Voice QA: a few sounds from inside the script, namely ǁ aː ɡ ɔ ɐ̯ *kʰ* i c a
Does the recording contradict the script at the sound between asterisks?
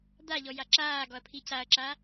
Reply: yes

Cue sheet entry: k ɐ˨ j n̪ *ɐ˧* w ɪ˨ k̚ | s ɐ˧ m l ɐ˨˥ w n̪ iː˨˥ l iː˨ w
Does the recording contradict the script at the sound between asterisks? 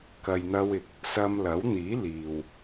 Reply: no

